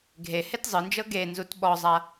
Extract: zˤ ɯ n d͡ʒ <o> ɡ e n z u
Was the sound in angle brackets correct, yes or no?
no